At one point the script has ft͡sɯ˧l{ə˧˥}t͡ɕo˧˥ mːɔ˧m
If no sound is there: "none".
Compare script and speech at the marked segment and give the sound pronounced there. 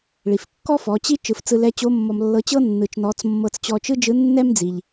ɛ˧˥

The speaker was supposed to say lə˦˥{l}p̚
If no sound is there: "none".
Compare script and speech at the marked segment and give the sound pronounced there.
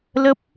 none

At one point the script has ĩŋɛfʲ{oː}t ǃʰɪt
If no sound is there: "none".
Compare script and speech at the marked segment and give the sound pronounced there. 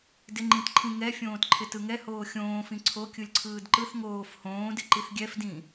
õː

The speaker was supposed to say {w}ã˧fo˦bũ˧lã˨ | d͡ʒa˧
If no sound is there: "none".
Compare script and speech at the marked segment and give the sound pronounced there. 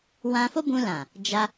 w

